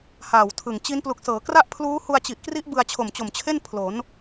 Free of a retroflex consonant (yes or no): yes